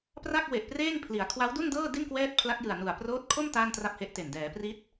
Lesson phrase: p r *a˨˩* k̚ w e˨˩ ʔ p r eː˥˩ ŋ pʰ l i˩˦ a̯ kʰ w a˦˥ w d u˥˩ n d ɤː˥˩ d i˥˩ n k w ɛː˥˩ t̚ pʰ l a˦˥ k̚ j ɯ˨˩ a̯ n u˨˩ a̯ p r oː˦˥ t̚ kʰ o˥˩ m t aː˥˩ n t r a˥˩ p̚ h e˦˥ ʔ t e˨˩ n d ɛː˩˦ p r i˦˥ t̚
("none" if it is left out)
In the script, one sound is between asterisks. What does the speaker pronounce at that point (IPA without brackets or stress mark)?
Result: a˥˩